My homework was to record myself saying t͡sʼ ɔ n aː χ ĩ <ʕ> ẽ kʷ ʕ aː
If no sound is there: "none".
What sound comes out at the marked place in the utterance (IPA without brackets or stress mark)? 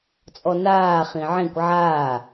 ʕ